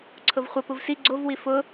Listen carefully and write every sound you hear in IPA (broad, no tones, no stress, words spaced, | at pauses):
ǀʰʊvχʷə puvsi ɡ͡ǀovwi fʊ